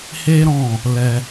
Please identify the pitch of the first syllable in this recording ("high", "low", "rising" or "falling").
high